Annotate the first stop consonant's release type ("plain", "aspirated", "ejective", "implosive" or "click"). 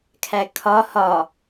aspirated